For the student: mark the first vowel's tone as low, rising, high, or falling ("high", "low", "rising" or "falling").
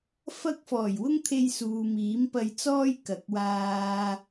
high